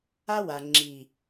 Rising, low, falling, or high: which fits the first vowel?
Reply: high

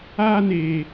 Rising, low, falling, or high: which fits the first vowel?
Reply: high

